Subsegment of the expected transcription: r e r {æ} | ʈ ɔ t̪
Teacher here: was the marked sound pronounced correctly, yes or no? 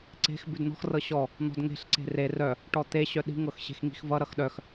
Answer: no